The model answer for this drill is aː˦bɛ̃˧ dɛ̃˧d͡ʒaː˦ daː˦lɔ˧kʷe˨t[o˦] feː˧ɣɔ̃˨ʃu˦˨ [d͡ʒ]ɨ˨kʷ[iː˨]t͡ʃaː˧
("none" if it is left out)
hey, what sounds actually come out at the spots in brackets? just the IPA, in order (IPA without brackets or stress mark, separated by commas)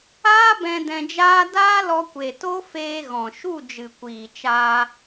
o˦, d͡ʒ, iː˨